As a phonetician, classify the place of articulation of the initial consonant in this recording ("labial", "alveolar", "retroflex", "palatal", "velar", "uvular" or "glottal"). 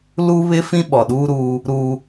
alveolar